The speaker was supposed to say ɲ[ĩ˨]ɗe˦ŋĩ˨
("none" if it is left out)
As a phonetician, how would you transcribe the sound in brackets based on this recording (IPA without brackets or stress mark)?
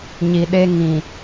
i˨